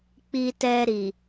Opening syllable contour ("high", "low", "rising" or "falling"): low